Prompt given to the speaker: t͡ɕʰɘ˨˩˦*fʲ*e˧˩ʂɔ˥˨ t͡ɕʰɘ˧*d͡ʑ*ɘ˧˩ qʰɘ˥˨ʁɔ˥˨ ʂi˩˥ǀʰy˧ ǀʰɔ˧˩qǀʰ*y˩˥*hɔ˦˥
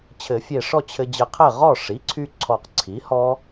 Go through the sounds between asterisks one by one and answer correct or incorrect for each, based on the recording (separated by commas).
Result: correct, correct, incorrect